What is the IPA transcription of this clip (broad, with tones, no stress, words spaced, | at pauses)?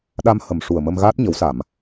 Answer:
ɗa˧m hə˨˩m ʂu˨˩ə̯mə˧m ɣaː˦˥t̚ɲə˨˩˦wsa˨˩˨m